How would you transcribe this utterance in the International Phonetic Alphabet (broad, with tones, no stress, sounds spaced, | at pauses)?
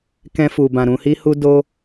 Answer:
k ɛ̃˦ f u˧ b ã˧ ɾ ũ˧ h i˦ h u˦ d o˦